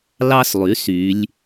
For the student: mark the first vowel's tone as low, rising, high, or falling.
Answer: high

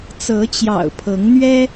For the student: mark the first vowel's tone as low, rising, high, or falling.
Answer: rising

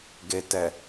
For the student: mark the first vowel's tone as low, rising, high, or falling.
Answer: low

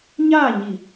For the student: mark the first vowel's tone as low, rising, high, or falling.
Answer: falling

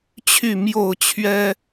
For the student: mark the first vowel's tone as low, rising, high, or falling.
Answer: falling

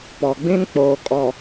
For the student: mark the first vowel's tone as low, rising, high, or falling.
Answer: low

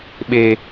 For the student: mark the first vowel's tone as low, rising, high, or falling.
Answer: high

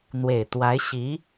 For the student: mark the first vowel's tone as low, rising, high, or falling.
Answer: low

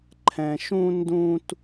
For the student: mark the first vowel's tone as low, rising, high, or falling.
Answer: low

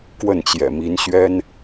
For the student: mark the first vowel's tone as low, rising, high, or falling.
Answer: falling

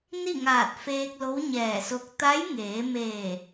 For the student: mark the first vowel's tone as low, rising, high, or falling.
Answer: falling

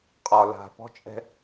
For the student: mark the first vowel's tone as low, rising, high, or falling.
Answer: low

